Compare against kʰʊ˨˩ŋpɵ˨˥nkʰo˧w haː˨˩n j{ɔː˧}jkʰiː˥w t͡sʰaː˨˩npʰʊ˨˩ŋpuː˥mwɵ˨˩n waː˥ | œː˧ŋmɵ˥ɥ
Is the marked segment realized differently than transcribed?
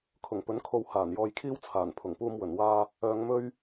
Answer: no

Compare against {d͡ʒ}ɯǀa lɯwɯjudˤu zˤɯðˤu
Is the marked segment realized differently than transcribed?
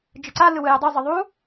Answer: no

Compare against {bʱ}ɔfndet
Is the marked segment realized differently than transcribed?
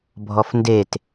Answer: no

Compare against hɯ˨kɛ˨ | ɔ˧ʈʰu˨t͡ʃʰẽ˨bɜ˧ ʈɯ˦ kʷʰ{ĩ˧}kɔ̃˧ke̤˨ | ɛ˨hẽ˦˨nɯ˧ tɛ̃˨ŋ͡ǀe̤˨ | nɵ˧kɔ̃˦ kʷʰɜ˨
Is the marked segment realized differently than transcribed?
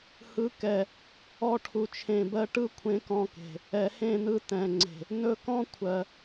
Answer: yes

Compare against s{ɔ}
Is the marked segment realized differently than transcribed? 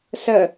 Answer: yes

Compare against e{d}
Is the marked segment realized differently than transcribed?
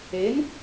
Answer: yes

